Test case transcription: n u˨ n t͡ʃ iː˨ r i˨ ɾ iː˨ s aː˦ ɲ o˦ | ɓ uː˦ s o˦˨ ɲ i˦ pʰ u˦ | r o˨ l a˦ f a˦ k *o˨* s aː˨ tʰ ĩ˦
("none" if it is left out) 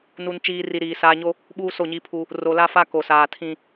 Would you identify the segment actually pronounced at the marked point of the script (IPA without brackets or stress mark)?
o˨